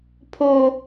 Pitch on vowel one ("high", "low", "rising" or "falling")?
high